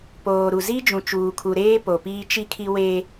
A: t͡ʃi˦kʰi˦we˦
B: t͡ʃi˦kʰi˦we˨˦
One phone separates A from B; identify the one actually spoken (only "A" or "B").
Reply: A